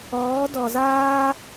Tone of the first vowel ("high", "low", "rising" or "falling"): rising